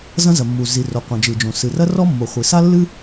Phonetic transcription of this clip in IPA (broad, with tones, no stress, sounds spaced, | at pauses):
z ɐ̃˥ z ɐ˩ mː u˩ z i˩ r o˩ qʷ ɐ̃˩ d͡ʒ ɨ˩ d͡ʒ õ˩ s ɨ˩ r ɐ˥ r ɔ˥ mː o˩ χʷ i˩ s a˥ lː ɨ˥